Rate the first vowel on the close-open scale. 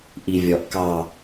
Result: close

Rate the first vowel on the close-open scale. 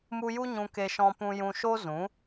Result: close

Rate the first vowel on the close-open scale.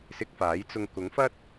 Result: close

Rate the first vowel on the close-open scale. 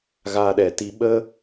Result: open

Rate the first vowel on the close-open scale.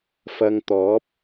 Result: open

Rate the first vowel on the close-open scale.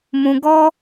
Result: close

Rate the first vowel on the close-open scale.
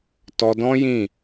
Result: mid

